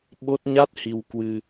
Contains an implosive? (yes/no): yes